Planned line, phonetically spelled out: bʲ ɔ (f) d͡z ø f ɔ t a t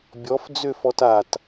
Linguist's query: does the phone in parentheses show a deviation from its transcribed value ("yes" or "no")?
no